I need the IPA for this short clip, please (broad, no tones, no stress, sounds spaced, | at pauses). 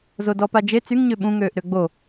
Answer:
z o d ɔ p a d͡ʒ e t͡s y ŋ ɲ ø ɓ ũ ŋ øː ʔ ɾ ø ɡ͡b o